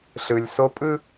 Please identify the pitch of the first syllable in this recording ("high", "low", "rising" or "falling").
low